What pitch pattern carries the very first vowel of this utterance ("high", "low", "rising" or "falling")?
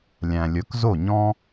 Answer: low